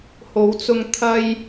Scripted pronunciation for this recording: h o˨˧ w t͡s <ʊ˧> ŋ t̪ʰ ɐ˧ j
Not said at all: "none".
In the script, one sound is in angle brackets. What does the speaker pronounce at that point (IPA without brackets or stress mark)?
ʊ˧